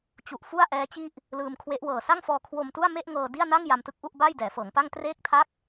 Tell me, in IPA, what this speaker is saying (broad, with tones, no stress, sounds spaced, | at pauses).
t͡ɕ u˨˩ ʔ f u˥˩ a̯ ʔ ɛː˦˥ t͡ɕ i˥˩ ʔ | l ɯː˧ m kʰ w e˦˥ ʔ w ɤː˨˩ s a˥˩ ŋ f ɔː˧ kʰ w o˧ m t u˥˩ a̯ m e˥˩ ʔ ŋ ɤː˧ d i˥˩ a̯ n a˥˩ ŋ j a˧ m t ɯ˦˥ k̚ ʔ u˥˩ ʔ b aː˥˩ j d ɛː˩˦ f ɤː˩˦ ŋ p a˥˩ ŋ t r eː˥˩ k̚ tʰ a˥˩ k̚